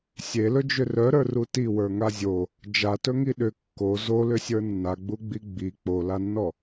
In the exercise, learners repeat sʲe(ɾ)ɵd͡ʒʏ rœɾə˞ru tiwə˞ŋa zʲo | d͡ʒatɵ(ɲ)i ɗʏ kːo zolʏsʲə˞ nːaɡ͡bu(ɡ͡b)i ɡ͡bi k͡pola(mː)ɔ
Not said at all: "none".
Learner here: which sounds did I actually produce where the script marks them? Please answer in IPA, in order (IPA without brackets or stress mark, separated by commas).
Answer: l, ŋ, ɡ͡b, nː